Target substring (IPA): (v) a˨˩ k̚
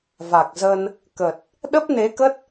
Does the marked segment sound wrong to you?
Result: no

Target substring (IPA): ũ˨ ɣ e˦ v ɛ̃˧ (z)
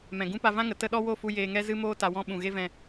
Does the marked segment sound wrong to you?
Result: yes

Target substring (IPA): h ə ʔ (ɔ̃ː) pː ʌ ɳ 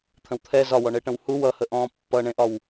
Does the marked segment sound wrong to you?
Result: no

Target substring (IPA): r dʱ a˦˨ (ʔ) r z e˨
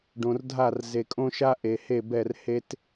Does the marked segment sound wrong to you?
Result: yes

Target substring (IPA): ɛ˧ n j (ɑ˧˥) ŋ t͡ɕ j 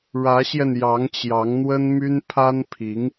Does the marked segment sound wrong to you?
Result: no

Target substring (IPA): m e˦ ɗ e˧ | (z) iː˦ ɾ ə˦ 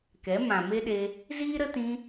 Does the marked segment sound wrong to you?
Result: no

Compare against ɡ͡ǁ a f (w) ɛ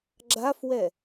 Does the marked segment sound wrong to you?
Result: no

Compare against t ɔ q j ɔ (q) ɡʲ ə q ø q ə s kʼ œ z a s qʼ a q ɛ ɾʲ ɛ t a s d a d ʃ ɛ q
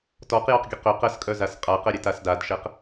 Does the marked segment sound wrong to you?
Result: no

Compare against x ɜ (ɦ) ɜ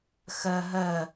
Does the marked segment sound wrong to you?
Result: no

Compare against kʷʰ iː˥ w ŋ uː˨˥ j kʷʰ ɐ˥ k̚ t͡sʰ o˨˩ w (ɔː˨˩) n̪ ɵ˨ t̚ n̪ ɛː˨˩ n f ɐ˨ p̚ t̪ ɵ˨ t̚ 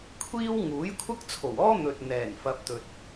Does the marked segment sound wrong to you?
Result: yes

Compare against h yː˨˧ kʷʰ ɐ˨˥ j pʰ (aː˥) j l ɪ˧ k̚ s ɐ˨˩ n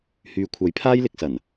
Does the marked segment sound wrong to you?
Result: no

